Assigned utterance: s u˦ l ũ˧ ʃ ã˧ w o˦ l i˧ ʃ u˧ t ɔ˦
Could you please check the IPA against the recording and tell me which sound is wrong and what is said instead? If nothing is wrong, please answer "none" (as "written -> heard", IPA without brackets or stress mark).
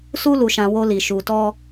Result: ũ˧ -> u˧